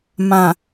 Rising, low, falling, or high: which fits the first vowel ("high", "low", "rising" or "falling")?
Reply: low